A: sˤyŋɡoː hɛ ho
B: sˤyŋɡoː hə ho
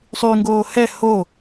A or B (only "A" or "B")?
A